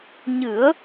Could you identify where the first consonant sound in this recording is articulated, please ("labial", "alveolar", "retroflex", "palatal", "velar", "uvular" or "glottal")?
palatal